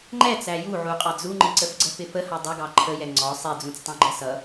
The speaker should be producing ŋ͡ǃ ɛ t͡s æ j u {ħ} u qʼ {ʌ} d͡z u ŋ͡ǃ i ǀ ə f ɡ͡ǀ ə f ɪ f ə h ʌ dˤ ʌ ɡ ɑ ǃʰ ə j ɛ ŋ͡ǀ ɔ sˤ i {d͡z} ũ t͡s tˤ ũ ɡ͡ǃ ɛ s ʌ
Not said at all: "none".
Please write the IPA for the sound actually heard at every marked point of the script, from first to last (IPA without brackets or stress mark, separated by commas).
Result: ʕ, ɑ, d͡z